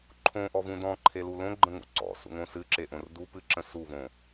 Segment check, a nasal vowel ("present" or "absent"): present